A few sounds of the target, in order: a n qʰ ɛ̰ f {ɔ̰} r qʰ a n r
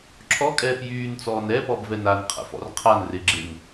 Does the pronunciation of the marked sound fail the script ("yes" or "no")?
no